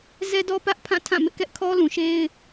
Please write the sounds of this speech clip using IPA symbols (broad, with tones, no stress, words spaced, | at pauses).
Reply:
zɛ˦dɔ˦pä˦ʔpʰã˦˨ tʰã˦˨mɪ˦ʔkɛ˦ʔ kʰɔ˦lũ˨ʃe˦ɪ̯